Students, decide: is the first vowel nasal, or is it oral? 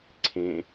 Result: nasal